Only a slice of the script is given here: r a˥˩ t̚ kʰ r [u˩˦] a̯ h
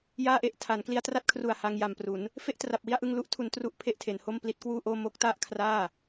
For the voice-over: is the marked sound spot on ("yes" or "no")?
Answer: no